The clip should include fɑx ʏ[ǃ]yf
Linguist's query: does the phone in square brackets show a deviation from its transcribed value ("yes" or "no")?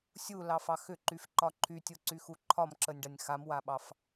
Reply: no